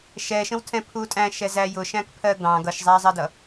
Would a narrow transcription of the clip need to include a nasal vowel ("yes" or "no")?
yes